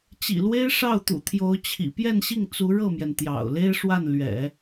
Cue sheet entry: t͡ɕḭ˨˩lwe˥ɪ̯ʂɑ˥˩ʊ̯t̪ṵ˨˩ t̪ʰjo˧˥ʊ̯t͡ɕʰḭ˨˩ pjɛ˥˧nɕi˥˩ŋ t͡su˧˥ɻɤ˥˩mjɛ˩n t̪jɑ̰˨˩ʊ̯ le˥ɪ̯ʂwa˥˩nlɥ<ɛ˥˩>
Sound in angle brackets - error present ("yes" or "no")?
yes